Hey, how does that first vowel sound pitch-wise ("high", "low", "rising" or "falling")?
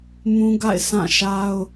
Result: high